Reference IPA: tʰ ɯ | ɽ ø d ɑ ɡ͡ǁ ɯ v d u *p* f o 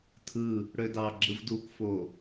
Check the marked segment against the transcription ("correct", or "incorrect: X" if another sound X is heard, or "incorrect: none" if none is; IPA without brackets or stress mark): incorrect: k